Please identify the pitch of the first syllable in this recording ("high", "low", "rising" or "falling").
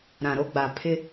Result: low